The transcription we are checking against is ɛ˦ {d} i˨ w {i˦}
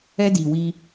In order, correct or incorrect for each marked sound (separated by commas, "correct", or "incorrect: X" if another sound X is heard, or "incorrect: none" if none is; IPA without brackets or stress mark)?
correct, correct